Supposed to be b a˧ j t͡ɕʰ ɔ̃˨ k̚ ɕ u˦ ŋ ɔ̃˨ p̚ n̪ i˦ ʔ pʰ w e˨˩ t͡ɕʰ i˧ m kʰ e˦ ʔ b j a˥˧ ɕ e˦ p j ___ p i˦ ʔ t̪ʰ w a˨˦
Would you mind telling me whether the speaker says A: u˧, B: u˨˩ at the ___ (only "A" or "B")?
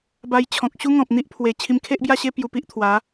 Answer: A